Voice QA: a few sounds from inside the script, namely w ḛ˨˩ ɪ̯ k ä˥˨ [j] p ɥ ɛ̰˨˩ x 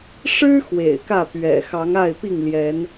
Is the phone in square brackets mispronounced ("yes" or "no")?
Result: yes